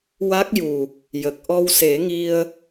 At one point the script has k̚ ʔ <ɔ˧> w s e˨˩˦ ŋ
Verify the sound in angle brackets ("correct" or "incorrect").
correct